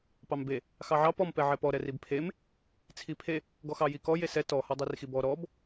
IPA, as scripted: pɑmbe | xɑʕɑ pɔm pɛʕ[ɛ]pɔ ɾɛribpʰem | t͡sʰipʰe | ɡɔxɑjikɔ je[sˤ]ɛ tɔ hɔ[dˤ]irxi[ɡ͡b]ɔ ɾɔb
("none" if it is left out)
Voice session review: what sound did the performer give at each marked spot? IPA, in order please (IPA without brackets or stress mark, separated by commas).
ɛ, s, dˤ, b